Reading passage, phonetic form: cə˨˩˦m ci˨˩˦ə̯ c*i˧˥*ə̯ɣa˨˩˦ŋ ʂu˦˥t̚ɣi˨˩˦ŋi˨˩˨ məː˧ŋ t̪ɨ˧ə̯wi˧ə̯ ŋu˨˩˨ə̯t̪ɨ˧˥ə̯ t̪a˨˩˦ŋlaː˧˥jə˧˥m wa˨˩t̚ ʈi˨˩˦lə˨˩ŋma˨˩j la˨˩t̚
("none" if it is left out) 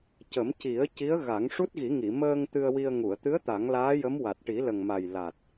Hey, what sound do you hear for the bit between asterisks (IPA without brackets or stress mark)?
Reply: i˧˥